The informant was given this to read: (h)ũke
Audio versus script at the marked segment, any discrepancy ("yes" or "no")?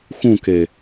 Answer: yes